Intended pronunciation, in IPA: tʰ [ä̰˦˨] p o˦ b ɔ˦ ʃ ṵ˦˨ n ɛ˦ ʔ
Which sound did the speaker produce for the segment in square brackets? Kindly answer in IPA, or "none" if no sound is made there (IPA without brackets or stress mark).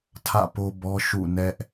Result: ä̰˦˨